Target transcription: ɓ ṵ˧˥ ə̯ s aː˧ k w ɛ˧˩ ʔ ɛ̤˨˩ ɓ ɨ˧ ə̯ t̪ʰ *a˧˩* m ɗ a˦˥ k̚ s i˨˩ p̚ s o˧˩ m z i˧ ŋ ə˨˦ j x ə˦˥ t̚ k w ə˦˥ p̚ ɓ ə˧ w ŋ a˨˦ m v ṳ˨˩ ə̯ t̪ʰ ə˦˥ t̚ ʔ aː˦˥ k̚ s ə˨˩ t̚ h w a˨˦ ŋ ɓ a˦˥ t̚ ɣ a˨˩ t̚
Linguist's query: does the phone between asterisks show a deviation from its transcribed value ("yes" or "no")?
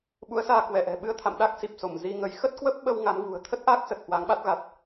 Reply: yes